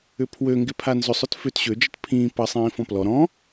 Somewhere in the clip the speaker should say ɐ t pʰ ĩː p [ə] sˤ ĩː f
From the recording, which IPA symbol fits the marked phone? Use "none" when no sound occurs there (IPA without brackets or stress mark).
ɐ